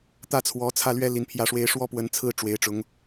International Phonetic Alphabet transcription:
t̪ ä˥˩ t͡sʰ w ɔ˧˥ t͡sʰ ä˥˩ l ɥ ɛ˥ l i˧˥ n pʰ j ä˥˩ ʂ w e˥ ɪ̯ ʂ w ɔ˥ p w ə˧˥ n t͡sʰ ɹ̩˥˩ ʈ͡ʂ w e˧˥ ɪ̯ ʈ͡ʂ ʊ˧˥ ŋ

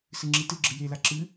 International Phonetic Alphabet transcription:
s ɨ ŋ͡ǁ i t ɨ ɡ͡ǁ ɨ j e l a ǁ ɨ

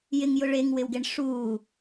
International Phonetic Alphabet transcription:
j ɪ ŋ j ʊ ɭ e ŋ w ɪ w ɡ e ɳ ʂ uː

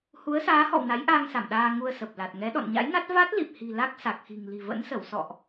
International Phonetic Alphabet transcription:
h u˨˦ ə̯ s aː˨˦ h ɔ̰˧˨ w n a˨˦ j ʔ aː˧ ŋ s a˧˩ m ɗ aː˧ ŋ u˧ ə̯ s ə˨˩ p̚ l a˨˩ t̚ ŋ ɛ˨˦ ɗ ɔ̰˧˨ n ɲ a̰˧˥ j n a˦˥ t̚ v a˦˥ t̚ l i˨˩ p̚ h i̤˨˩ l a˦˥ k̚ s a˨˩ k̚ x i̤˨˩ ŋ l i̤˨˩ v ə̰˧˥ n s ə˧˩ w s ɔ̰˧˨ ʔ

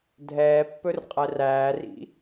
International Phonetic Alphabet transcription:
dʱ ɛː pː ɵ r qʼ ɛ r æː r ḭ

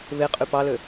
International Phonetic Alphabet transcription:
β e qʼ y p ɑ l ø

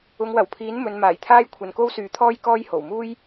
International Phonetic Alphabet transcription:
ʊ˨˧ ŋ w ɐ˨˩ w pʰ iː˨˥ n m ɵ˨˧ n m aː˨˩ j t̪ʰ aː˥ j kʷʰ ɐ˨ n k o˥ w s yː˨˥ t̪ʰ ɔː˥ j k ɔː˥ j h o˨˩ w m uː˥ j

